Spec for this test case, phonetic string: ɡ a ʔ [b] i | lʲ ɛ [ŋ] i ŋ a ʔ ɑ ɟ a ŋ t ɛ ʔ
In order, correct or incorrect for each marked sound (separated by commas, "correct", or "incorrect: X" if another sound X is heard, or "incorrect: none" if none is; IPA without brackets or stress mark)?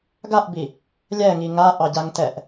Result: correct, correct